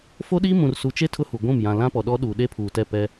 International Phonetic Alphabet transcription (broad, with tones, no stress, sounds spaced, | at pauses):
f o˦ ɗ iː˦ m ũ˨ r s u˨ t͡ʃ e˦ tʰ ʊ˦ h u˨ ɡʷ ũ˦˨ m j ã˨ l ã˦ p ɔ˨ ɗ ɔ˦ ɗ uː˨ ɗ e˦ pʰ uː˨ t ɛ˦˨ p ɛ˦